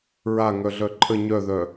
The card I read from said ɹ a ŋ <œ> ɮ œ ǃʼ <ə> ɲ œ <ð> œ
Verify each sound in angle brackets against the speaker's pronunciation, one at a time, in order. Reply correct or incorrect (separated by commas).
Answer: correct, correct, correct